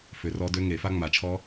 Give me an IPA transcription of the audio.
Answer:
f ʏ˨˩˦ r ɔ˦˥ d ø˦˥ ŋ e˨˩˦ f a˦˥ ŋ͡m a˨˩˦ t͡ʃʰ ɔ˦˥

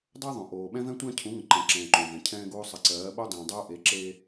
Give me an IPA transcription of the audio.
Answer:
dˤ ɜ˦ ðˤ õ˨ ʔ oː˨ ɓ ɛ̃˦ v ɛ̃˦ tʷ ɛ̃˦ cʰ ũ˨˦ ŋ ə̃˨ ǃ ɛ̃˨ ǁ ɛ̃ː˨ ǃ õ˨ v ɛ̃˨ cʰ ɛ̃ː˦ ɡ oː˦ sˤ ə˨ ǀ ɜː˨˦ ɓ o˦ dˤ ẽː˨ dˤ oː˦ ʔ e˨˦ ǁ e˦

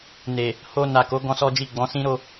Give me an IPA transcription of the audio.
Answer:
n e˨ | h o˧ n a˨ k o˨˦ ɡ ɔ̃˦ s ɔ˦ d͡ʒ i˦˨ ɡ͡b ɔ̃˨˦ s ĩ˦ ɾ o˦

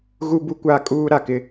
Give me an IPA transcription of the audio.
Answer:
ɣ u˦ b u˦ kʷ a˦ kʼ uː˦ ɾ a˨ k ɪ˦

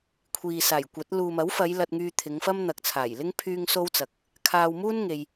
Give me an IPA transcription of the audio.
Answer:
kʷʰ iː˨ s aː˨˩ j kʷ ɐ˨˥ t̚ l uː˨ m ɐ˨˥ w f ɐ˨˧ j l ɐ˧ t̚ ŋ yː˧ t̪ʰ ɪ˨˧ ŋ f ɐ˥ m n̪ ɐ˨ k̚ t͡sʰ aː˨˩ j l ɪ˥ ŋ pʰ yː˥ ŋ s o˥ w t͡s ɐ˨ k̚ | kʰ aː˧ w m uː˥ n ŋ e˧ j

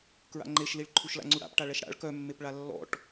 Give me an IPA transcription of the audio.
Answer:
k ɹ a̰ ŋ͡ǃ e ʃ l i ɭ ǃʰ u ʃ l a̰ ŋ͡ǀ u ɽ a̰ p ʈ a ɭ ɛ ʃ ɽ a̰ ɭ k œ mː e p ɭ a lː ɔ̰ ʈ

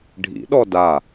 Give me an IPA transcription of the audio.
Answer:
ɖʱ ḭ ɗ ɔ d a

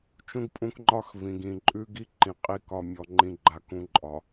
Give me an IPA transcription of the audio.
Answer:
t͡ʃ ũ˦ ɡ pʼ ũ˦ k ŋ͡ǃ ɒ˦ x v ĩ˨ ɡ ĩ˨ ǃʼ ʉ˦ ɡ i˦ ǃ ĩ˨ qʼ i˨ k ɒ˨ mʲ ɔ˨ ŋ͡ǃ ĩ˨ ɡ͡ǃ a˨ k ũ˨ ǃʼ ɒ˨

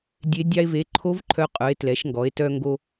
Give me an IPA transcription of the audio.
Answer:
dʲ e˧˥ dʲ ɑ˧ e̯ v e˩˥ ǃʰ o˧˥ v ǃʰ œ˧˥ qʼ œ˩˥ e̯ t l ɛ˩˥ ʃ ŋ ɡ ɔ˩˥ e̯ t œ˧ ŋ ɡ o˧

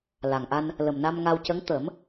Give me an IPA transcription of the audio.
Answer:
l a˨˩ ŋ ʔ a˧ n | l ə˨˩ m n a˧ m ŋ a˧ w c ə˧˥ ŋ t̪ ə˨˩˦ m

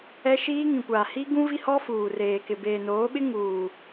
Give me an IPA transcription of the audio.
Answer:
ɛ˦ ʃ iː˦ ŋ ĩ˨ kʷ aː˨ h i˦ ɡ ũ˦ v i˦ h ɔ˦ f uː˨ r eː˨ k ɪ˨ b eː˨ n oː˨˦ ɓ ɪ˦ ŋ uː˨

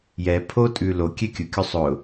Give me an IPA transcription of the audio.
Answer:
j ɛ pʰ o tʼ ʉ l o kʲ ɛ kʲ ʊ kʲ o sˤ ʊ

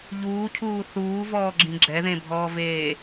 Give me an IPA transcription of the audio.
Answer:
ʎ uː cʰ uː θ uː v ɔː ɡ͡ǁ ĩ ɡ͡ǁ ɛ ð ẽ bʱ ɔː v eː

